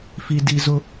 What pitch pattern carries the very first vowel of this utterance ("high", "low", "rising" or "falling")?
high